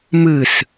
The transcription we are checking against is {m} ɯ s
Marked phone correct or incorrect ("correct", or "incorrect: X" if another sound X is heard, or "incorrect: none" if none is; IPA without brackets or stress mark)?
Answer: correct